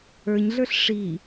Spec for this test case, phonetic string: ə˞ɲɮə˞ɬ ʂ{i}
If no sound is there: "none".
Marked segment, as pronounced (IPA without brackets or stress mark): i